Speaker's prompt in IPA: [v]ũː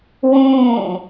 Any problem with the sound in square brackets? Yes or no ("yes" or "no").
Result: yes